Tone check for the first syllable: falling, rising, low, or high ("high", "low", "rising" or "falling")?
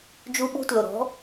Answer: high